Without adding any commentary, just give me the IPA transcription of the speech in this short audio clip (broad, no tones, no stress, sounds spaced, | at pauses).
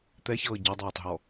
t̪ ɛ ç ɤː ɟ ɤ dˤ ɤː tˤ ɦ ɔ